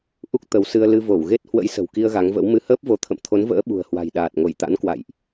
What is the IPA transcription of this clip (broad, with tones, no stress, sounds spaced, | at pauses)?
ʔ u˦˥ k̚ t̪ ə˨˦ w s ɨ˧ ə̯ l ɨ˧ v o˧˩ w ɣ e˦˥ t̚ h w ə̰˧˥ j s ə̤˨˩ w k i˧ ə̯ ɣ a˨˦ ŋ v ə̰˧˥ w m ɨ˧ h əː˦˥ p̚ v o˨˦ t̪ʰ ə̰˧˨ m t̪ʰ o˨˦ n v ə̰ː˧˥ ɓ ṳ˨˩ ə̯ h w a̤˨˩ j ɗ aː˨˩ t̚ ŋ o˧˩ j t̪ a̰˧˥ n k w a̰˧˨ j ʔ